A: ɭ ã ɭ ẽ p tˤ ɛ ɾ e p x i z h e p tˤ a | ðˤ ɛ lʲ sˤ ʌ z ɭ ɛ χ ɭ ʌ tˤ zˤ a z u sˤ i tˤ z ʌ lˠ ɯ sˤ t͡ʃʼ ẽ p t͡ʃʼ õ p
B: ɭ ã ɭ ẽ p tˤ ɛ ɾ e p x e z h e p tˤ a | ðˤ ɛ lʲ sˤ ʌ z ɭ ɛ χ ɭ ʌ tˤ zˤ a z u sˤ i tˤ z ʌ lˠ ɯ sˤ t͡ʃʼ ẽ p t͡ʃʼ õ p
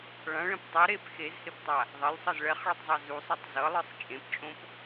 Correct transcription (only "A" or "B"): B